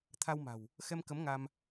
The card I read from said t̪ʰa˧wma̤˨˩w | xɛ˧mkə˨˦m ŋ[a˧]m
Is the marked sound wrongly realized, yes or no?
no